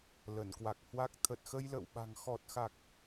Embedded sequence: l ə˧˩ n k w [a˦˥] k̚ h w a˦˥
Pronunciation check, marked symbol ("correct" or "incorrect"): incorrect